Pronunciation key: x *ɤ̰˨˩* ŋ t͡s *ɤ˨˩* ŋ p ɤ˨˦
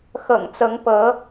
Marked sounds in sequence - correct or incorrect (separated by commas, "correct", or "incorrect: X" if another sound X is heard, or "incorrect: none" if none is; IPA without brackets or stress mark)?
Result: correct, incorrect: ɤ˨˦